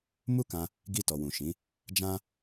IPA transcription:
m u˦ k ã˧ | ɡ i˧ t ɔ˨ w ũ˨ ʃ ĩ˨˦ | d͡ʒ ã˦

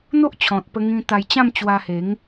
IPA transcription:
n̪ o˦ ʔ t͡ɕʰ ɔ̃˨ t̚ p ə˧ ŋ ĩ˧ t̪ a˧ j t͡ɕ ã˥˧ m t͡ɕ w a˧ h e˨˦ ŋ

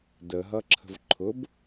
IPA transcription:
d ə ɦ ʌ ǁʰ ə̤ v ǃʰ ʊ b

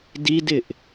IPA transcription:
d i d ɪ ʔ

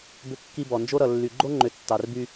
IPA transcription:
b ʏ˦ kː i˦ b ɔ˨ n d͡ʒ o˦ ɾ ʌ˨ lː y˨ ɡ͡ǃ o˦ ŋ͡ǃ ʏ˨ tː ɑ˨ r b y˦

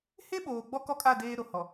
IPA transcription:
h e˦ ɓ oː˨ ɡ͡b ɔ˦ k ɔ˦ kʼ a˦˨ d eː˦ ɾ o˨ h ɔ˨

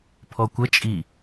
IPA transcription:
pʰ ɔ kʷ ə t͡ʃʼ i

